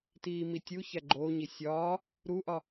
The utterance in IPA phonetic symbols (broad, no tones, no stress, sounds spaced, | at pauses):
t iː m i tʲ u ç æ ɡ͡ǃ oː ɲ i sʲ ɒː | ɾ u ʔ ɒ